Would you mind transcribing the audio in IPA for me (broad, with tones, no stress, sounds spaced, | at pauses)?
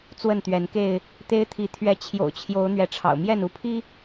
t͡s w ə˥˨ n t̪ ɥ ɛ˨˦ n k e˥˨ ɪ̯ | t̪ e˦ ɪ̯ t̪ʰ i˨˦ t̪ʰ ɥ ɛ˨˦ t͡ɕʰ j o̰˨˩ ʊ̯ t͡ɕʰ j o˨˦ ʊ̯ n̪ ɥ ɛ˨˦ ʈ͡ʂʰ ɑ̰˨˩ ʊ̯ m j ɛ˥˨ n u˦ pʰ i˦